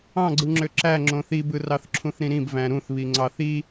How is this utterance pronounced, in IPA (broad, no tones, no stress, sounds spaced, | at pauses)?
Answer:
ɑ̃ ɡ͡ǀ ɯ ŋ͡ǁ ø ǁ æ ŋ͡ǁ õ θ i b ɯ r ɑ θ ǁʰ ũ θ ɾ ĩ ɾ ĩ b v æ̃ ɾ ũ θ β i ŋ͡ǀ ɑ θ i